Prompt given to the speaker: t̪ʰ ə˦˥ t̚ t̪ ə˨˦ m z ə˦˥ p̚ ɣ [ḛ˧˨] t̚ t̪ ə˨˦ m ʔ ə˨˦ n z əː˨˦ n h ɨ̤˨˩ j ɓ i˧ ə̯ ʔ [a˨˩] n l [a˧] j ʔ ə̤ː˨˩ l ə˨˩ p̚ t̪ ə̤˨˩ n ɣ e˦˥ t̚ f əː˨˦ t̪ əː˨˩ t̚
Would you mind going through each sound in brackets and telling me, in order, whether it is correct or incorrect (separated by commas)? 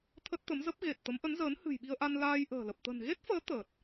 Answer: incorrect, incorrect, incorrect